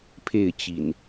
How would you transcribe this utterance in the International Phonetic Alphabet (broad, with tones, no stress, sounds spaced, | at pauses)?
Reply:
pʰ e˥˨ ɪ̯ t͡ɕ ḭ˨˩ n